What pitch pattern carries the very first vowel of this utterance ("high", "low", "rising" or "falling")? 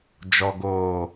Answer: low